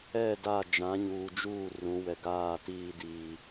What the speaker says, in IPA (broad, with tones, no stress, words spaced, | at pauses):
ɛ˦˨da˦˨ d͡ʒã˨˦ɲuː˨d͡ʒuː˦˨ rũ˨˦wɛ˨ɡaː˦˨ tiː˦diː˨